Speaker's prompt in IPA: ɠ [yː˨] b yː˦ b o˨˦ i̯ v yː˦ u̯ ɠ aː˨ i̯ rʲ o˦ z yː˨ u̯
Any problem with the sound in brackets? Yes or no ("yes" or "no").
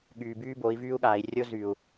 no